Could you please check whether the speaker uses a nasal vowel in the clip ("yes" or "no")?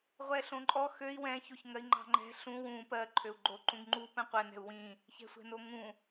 yes